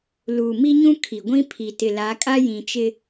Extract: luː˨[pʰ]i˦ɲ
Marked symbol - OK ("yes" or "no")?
no